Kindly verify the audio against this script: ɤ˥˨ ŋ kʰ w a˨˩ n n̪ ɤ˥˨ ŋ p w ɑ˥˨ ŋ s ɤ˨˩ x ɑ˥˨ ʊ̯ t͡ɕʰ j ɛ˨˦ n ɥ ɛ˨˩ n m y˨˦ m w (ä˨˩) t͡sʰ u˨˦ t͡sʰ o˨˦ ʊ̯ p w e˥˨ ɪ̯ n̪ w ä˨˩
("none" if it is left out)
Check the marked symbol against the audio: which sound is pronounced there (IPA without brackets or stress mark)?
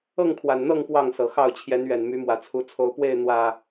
ä˨˩